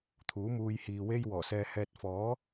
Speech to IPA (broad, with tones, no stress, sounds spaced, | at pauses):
t̪ʰ uː˨˥ m uː˧ j h iː˨ w e˥ j w ɔː˨˩ s ɛː˧ h ɛː˧ t̚ f ɔː˨˥